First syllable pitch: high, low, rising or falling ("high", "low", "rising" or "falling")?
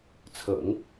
low